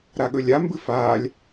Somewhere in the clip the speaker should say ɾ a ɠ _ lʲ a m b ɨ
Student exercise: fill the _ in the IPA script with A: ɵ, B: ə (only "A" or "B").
A